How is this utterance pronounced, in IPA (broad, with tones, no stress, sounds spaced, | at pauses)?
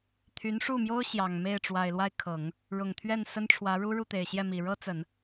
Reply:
t̪ʰ y˧˥ n ʂ u˥˩ m j o˥ ʊ̯ ɕ j ɑ˨˩ ŋ m e˥˩ ɪ̯ ʈ͡ʂ w a˨˩ ɪ̯ l w a˥˩ ɪ̯ kʰ ɤ˨˩˦ ŋ | ɻ ʊ˨˩ ŋ t̪ʰ ɥ ɛ˥˩ n s ə˥ n ʈ͡ʂʰ w ä˧˥ ɻ u˥ ɻ u˥˩ t̪ e˨˩ ɪ̯ ɕ j ɛ˥˩ m i˨˩ ɻ ɤ˥ t͡s ə˨˩˦ n